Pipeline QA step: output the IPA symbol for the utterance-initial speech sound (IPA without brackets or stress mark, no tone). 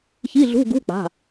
ç